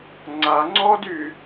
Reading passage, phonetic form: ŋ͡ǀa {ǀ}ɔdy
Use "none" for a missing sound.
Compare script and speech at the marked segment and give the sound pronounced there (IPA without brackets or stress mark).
ŋ͡ǀ